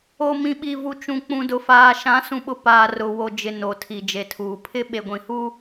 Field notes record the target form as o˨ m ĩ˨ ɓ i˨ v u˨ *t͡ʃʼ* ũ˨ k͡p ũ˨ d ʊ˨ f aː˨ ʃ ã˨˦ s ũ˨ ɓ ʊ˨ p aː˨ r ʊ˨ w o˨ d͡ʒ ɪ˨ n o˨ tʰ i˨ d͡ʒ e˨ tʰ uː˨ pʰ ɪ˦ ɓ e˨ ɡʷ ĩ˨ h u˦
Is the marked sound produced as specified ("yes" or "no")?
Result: no